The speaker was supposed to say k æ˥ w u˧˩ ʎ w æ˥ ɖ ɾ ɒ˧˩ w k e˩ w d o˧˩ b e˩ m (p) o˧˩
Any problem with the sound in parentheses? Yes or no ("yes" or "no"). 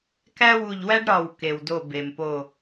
no